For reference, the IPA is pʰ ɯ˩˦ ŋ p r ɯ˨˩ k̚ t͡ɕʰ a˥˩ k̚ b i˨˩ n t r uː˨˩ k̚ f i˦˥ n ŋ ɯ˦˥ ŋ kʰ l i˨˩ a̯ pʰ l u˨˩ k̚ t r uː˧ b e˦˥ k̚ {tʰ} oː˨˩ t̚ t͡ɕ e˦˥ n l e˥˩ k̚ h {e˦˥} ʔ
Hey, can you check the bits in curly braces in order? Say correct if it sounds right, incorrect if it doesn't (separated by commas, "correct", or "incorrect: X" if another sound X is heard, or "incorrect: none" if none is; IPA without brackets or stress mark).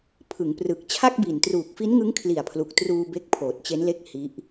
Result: incorrect: pʰ, incorrect: i˦˥